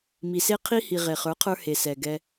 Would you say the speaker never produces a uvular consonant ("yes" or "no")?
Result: no